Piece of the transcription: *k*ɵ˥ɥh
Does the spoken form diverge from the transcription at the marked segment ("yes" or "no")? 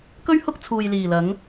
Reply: no